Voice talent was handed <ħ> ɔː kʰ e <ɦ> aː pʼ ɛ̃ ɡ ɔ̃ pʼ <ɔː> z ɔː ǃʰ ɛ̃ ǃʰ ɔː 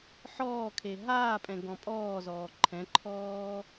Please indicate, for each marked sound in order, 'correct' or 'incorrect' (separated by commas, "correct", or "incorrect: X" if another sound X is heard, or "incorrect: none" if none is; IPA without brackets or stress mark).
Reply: correct, correct, correct